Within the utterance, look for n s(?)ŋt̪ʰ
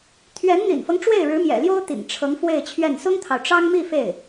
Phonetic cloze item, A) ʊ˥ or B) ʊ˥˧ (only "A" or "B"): A